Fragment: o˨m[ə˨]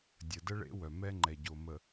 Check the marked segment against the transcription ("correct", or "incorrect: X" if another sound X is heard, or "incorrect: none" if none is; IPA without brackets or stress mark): correct